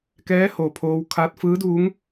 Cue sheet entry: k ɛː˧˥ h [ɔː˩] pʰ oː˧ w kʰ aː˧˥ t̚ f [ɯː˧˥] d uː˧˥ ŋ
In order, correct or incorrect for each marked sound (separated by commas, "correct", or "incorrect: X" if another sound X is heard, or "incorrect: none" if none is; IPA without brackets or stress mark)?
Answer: incorrect: oː˩, correct